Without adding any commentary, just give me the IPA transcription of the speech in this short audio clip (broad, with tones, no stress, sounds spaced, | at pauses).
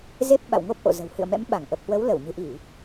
z e˦˥ p̚ ɓ a̰˧˨ w ŋ o˦˥ p̚ ʔ o̰˧˨ z ə̤˨˩ w h ɨ̰˧˨ ə̯ m ɛ̰˧˥ m ɓ a˧˩ ŋ ʔ ə˨˩ p̚ h w ə˨˦ w l ə˧˩ w ɲ ɨ̤˨˩ ʔ i˧˩˨